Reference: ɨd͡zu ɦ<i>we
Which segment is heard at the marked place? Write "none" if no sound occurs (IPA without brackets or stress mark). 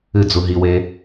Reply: i